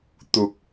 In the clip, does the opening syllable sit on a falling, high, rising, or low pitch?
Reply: rising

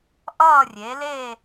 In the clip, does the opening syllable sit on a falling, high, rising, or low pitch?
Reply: falling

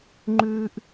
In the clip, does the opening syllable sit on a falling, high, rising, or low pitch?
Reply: high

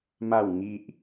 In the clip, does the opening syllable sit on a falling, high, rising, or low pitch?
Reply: falling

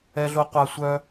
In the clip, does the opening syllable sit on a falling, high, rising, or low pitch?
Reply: high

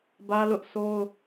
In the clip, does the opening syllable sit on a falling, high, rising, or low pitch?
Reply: high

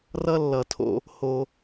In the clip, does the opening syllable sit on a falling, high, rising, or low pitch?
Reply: high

